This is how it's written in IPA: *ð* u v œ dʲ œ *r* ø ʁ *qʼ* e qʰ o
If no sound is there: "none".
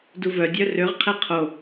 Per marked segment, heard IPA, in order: d, r, qʰ

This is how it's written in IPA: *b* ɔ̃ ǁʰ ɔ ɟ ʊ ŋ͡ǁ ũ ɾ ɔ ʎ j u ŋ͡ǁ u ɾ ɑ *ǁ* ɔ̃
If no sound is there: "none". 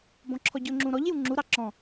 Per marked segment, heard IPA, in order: b, ǁ

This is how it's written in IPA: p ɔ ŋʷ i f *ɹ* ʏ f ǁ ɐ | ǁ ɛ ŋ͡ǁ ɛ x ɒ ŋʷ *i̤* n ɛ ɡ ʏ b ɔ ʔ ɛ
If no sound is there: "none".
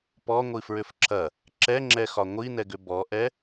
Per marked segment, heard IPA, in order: ɹ, i

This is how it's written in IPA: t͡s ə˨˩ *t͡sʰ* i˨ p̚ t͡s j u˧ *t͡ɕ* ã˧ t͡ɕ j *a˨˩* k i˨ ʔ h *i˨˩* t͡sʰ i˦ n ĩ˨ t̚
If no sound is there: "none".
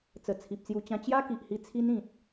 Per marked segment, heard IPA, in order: t͡sʰ, t͡ɕ, a˦, i˧

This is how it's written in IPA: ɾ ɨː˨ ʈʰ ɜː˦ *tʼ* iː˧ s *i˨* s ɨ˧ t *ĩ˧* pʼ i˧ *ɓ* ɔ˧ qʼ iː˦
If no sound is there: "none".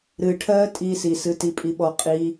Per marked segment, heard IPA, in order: tʼ, i˨, i˧, ɓ

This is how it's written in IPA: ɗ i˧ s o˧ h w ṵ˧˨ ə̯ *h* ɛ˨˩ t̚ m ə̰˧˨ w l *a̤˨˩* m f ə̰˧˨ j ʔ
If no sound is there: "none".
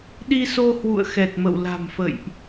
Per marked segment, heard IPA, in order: x, a̤˨˩

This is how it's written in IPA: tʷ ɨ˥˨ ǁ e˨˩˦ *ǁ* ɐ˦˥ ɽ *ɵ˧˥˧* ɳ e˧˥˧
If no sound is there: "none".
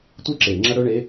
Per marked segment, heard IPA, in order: ŋ͡ǁ, ɵ˧˥˧

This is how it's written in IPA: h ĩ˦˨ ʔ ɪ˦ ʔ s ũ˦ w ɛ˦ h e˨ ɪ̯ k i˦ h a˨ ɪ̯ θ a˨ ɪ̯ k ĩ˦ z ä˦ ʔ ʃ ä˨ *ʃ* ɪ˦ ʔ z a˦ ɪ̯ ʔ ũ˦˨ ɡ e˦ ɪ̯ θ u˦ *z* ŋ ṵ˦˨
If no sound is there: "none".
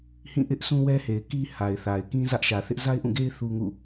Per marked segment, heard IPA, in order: θ, none

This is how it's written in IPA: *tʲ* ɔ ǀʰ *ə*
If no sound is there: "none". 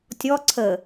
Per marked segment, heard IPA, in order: tʲ, ə

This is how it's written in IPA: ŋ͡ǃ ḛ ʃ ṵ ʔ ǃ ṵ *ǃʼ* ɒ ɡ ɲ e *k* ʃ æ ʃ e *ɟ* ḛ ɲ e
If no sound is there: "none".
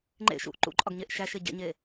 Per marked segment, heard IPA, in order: ǃʼ, ʔ, ɟ

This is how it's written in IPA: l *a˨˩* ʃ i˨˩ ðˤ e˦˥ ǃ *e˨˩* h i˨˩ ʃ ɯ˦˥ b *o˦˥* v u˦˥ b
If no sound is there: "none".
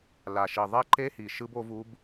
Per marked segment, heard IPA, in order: a˨˩, e˦˥, o˦˥

